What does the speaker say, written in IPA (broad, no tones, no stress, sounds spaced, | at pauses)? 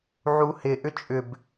ʕ u h ɪ ʔ ʏ t͡ʃʼ ʏ b